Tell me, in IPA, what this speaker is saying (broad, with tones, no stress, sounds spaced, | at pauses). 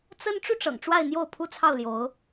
t͡s ə˥ n ʈ͡ʂ u˥˩ ʈ͡ʂ ɤ̰˨˩ ŋ ʈ͡ʂ w a˥˧ ɪ̯ n̪ j o˥˩ ʊ̯ pʰ u˥ t͡sʰ ɑ˥˩ ʊ̯ l j o˧˥ ʊ̯